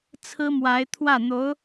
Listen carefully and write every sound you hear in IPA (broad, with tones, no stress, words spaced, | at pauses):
t͡sʰɹ̩˥mwa˧˥ɪ̯ t̪ʰwä˥˩n̪o˧˥ʊ̯